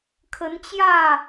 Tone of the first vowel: rising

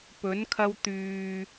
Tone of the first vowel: rising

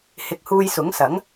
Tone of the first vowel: rising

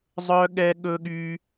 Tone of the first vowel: high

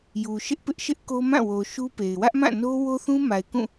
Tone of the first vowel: low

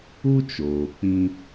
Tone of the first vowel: high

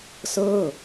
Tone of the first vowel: falling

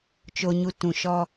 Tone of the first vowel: high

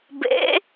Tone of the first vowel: rising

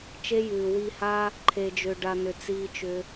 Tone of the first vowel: high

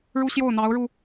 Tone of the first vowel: high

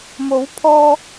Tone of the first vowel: rising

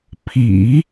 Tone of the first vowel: low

